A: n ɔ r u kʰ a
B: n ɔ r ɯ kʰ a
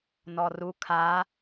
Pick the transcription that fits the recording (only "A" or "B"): A